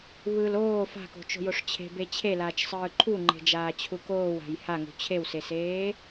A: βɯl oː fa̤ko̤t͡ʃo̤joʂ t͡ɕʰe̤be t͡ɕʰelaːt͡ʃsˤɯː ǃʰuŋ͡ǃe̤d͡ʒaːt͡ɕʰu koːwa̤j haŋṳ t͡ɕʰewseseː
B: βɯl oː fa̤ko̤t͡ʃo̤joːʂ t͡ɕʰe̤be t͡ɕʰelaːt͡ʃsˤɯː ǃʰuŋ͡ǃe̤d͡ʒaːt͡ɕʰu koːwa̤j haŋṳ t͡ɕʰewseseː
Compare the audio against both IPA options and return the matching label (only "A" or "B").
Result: A